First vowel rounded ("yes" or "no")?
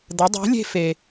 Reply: no